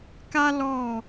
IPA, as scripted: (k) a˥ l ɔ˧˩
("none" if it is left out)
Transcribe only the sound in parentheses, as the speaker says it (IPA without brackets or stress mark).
k